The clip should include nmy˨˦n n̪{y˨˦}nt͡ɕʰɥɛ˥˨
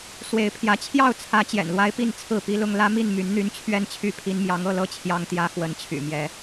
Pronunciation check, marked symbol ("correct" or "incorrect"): incorrect